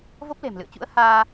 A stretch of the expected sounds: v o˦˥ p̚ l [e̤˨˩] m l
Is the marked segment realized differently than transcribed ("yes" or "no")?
no